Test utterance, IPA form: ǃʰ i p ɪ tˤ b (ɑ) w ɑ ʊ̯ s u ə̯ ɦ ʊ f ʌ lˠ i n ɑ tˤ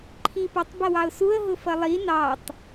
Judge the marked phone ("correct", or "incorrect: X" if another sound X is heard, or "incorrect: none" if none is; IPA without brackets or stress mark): incorrect: ʌ